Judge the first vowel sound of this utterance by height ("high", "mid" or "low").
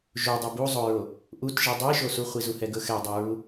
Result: mid